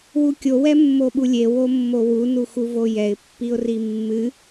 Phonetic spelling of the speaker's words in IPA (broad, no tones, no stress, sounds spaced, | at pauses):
w u kʲ o w ɛ mː o ɓ u lʲ e w o mː o w u n u x u v o j ɛ ɪ̯ pː i ʊ̯ r i mː ɨ